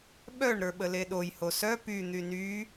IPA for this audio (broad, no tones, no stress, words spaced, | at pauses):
ɓœɳ ɾə˞ɓəleɗoj hosœ py n̪yny